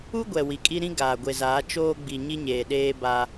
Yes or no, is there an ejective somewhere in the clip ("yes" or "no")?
yes